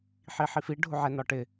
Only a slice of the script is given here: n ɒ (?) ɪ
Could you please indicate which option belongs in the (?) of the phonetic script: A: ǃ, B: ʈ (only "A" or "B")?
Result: B